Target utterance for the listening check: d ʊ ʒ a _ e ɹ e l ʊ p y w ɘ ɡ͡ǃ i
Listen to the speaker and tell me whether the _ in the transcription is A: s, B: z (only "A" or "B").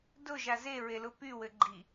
B